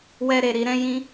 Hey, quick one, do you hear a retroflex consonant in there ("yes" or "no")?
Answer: no